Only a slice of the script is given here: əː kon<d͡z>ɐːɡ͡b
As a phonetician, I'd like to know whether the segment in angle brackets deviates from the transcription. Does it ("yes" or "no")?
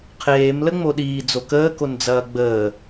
no